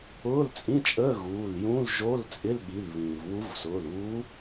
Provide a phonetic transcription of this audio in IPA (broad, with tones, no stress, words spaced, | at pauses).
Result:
ʊː˧˥˧lt͡sʼĩ˧˥˧t͡ʃʼəː˧˥˧ ɣuː˩˧˩l jũ˧˥˧lʒo˧˥˧lt͡sʼɪ˧˥˧lɠi˩˧˩l βĩː˩vwu˧˥v sʊː˩˧˩luː˧˥